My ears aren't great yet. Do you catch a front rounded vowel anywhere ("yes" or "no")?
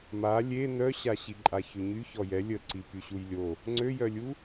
yes